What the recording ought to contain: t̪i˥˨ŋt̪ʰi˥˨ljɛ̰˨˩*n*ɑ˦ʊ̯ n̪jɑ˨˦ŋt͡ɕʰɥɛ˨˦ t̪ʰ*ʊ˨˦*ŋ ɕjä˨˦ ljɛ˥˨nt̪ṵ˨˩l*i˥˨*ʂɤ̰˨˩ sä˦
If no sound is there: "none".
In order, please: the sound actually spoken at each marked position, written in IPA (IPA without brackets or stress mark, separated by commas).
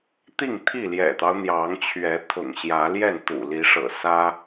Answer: t̪, ʊ̰˨˩, i˨˦